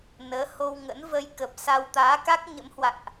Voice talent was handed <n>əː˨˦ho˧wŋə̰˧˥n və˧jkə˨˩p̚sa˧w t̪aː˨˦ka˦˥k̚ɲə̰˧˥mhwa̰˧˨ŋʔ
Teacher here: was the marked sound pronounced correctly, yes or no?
yes